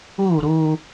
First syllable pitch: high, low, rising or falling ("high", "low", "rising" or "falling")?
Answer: falling